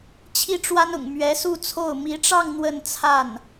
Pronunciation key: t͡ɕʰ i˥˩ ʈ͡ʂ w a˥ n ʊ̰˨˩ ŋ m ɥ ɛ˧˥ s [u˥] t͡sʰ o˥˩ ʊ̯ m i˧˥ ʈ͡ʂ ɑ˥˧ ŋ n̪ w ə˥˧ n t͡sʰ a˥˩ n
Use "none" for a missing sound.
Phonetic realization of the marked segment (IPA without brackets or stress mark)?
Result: u˥˧